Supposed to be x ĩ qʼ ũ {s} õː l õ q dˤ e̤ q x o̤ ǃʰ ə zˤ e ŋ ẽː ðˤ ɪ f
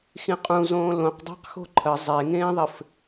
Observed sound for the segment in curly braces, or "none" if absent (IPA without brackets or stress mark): z